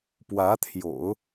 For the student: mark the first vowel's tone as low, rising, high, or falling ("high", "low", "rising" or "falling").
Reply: rising